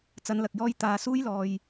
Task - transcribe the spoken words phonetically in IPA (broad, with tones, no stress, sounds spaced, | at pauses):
t͡s ɐ˨˧ n l ɐ˨ k̚ j ɔː˧ j t̪ aː˨˧ s uː˥ j l ɔː˨ j